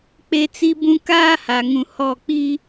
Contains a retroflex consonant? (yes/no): no